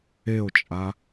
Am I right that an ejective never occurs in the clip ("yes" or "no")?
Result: no